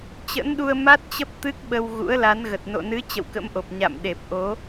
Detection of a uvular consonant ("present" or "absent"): absent